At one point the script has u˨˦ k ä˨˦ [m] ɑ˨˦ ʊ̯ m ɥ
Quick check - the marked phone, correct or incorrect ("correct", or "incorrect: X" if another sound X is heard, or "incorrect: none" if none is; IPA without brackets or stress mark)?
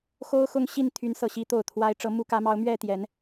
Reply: correct